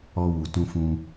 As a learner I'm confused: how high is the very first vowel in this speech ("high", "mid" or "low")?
mid